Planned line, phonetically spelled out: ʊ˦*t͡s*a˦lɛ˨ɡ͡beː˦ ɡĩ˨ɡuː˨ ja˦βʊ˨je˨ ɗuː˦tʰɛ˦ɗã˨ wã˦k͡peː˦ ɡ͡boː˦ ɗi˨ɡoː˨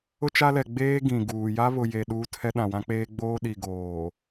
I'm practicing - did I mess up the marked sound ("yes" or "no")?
yes